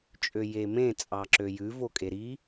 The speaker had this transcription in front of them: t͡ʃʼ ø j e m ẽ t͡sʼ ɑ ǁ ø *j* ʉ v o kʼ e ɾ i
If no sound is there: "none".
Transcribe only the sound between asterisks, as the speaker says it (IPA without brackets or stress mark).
j